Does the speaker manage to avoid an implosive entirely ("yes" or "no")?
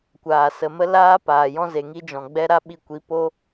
no